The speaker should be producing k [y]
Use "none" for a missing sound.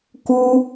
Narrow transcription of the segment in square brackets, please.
u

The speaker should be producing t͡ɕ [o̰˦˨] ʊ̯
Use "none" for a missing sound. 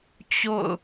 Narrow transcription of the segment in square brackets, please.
o̰˦˨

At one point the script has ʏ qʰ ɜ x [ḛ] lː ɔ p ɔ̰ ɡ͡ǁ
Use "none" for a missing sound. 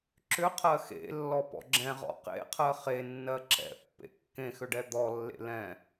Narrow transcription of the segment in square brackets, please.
ḛ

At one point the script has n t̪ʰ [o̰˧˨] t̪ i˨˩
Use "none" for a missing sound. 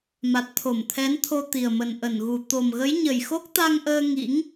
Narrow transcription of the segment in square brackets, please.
o˧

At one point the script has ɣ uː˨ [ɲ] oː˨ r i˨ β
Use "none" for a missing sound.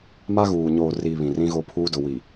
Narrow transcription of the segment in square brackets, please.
ɲ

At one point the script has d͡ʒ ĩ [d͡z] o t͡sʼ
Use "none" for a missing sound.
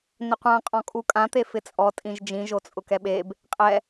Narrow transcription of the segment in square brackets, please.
ʒ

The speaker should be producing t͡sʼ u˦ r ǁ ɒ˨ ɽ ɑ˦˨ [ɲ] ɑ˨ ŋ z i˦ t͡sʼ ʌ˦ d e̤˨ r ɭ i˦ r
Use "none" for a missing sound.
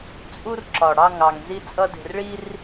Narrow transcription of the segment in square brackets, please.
ŋ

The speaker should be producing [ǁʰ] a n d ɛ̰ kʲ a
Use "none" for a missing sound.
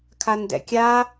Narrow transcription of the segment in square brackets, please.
kʰ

